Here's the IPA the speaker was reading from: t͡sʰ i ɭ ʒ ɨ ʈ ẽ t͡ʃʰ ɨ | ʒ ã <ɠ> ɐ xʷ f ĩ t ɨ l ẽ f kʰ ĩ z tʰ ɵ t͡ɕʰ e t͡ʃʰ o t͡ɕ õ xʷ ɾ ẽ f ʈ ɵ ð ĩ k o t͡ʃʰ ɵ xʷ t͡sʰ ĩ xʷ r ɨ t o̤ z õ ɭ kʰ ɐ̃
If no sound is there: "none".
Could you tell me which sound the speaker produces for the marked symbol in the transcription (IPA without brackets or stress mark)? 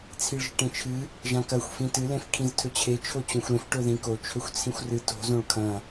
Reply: k